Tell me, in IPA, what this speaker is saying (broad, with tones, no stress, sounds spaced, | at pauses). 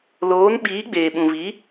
l oː˨˦ n ɓ iː˨˦ ɡ͡b eː˨ ɓ ũ˨ v i˨˦